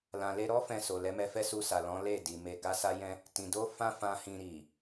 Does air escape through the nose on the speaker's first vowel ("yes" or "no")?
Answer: yes